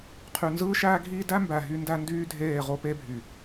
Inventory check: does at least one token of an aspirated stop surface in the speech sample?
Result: yes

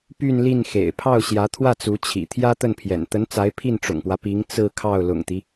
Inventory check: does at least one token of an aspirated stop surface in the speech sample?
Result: yes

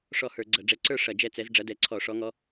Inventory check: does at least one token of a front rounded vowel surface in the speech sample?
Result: no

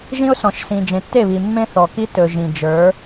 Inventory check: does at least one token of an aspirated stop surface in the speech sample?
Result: no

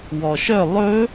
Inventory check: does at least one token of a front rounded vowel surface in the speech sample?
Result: yes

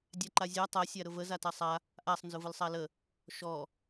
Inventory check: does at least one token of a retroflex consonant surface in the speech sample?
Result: no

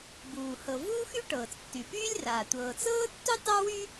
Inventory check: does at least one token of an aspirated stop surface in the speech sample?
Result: no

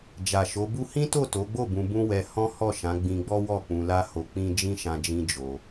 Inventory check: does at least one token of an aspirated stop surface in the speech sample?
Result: no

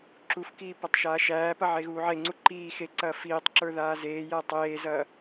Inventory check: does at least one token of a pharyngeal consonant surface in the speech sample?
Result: yes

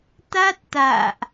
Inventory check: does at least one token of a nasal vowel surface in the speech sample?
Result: no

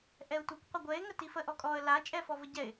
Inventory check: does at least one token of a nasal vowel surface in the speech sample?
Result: no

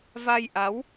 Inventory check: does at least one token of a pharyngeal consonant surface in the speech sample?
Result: no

